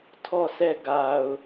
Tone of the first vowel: falling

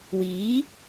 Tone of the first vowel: rising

